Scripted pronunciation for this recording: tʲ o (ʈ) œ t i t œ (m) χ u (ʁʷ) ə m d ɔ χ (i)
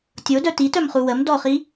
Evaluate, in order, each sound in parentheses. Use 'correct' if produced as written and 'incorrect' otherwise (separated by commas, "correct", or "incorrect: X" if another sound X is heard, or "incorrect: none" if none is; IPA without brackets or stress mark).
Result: incorrect: d, correct, incorrect: w, correct